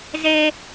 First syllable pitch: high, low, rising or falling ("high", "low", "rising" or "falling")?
high